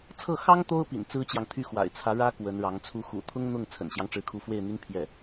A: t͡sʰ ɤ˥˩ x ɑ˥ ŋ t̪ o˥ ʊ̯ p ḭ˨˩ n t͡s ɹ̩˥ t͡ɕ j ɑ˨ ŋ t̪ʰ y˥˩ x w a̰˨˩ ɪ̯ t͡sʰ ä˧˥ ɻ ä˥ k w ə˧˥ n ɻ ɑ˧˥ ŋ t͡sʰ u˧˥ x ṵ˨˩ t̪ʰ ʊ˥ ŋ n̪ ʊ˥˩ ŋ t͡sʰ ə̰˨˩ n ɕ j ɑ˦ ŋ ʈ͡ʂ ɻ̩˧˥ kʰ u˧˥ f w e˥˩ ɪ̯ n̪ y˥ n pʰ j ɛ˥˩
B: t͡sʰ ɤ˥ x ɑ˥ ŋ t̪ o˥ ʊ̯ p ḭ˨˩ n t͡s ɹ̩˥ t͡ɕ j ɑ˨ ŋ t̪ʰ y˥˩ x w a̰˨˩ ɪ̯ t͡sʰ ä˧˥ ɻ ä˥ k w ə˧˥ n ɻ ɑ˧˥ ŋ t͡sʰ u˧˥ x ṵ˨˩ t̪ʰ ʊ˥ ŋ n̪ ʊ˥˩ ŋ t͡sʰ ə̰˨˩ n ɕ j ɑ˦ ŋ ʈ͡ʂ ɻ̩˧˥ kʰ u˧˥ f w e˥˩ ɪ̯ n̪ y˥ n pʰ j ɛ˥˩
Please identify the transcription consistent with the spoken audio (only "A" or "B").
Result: A